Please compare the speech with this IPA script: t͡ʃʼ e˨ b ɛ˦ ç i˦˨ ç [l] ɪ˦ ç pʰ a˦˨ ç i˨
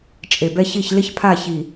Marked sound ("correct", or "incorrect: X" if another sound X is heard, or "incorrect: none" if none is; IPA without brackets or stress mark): correct